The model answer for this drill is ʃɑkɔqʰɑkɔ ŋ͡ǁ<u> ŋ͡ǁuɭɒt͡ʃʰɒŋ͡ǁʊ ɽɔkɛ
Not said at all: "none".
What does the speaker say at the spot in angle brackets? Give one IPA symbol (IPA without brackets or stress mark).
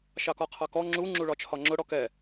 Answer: u